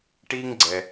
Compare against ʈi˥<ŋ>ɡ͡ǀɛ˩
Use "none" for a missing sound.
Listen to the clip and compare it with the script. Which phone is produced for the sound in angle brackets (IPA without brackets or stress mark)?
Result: ŋ